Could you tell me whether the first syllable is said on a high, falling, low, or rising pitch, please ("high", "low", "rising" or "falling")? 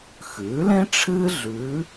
rising